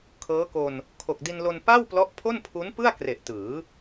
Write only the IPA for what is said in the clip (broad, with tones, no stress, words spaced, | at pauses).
kʰɤː˦˥ko˧n | kʰo˨˩k̚di˧nlo˧n pa˥˩wplɔ˦˥ʔ pʰo˥˩npʰu˦˥npɯ˥˩a̯kre˨˩ʔ tɯː˩˦